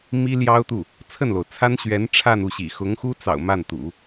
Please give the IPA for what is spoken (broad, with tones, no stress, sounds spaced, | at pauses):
m i˥ l j ɑ˥ ʊ̯ t̪ u˥˩ | t͡sʰ ə˥˩ n l o˩ ʊ̯ t͡sʰ a˥ n ɕ ɥ ɛ˧˥ n ʈ͡ʂʰ a˥˧ n u˥˩ ɕ ḭ˨˩ x ʊ˧˥ ŋ x u˥ t͡s ɑ̰˨˩ ʊ̯ m a˥˩ n t̪ ṵ˨˩˦